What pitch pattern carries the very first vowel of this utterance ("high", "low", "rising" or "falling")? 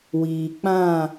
low